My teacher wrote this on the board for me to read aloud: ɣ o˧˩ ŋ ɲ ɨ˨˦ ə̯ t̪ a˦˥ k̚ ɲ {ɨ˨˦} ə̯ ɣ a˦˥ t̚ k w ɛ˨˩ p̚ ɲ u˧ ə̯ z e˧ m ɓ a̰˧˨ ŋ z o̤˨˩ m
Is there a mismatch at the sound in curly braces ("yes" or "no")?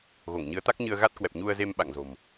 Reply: yes